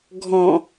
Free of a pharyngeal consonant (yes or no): yes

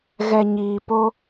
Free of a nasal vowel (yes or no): yes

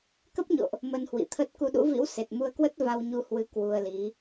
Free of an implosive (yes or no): no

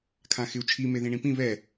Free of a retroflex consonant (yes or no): no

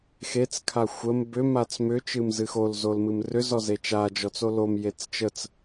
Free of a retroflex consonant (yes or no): yes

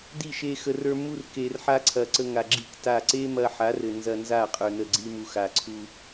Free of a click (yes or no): no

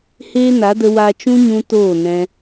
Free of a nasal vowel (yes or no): no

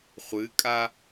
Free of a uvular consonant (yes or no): no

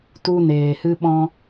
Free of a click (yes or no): yes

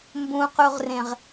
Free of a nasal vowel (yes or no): no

